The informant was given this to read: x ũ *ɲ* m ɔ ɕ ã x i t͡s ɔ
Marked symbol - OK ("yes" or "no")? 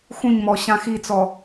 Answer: yes